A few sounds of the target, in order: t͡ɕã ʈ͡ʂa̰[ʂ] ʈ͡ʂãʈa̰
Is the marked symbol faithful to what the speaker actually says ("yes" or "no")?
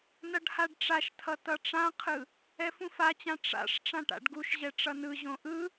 yes